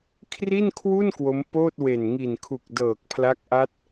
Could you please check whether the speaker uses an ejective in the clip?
no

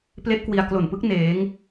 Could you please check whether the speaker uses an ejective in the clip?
no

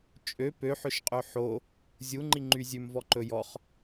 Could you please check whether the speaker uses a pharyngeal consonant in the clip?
yes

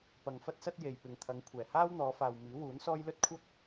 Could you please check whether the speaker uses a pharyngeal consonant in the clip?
no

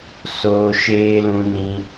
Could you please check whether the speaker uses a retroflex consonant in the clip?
no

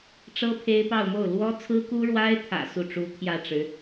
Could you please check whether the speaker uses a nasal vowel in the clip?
no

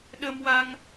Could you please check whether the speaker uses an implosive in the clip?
yes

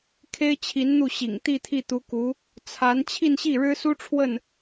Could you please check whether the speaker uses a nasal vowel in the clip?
no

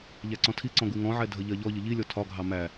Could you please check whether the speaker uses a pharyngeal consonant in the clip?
yes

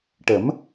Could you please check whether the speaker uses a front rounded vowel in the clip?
no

